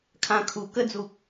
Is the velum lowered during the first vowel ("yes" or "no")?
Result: yes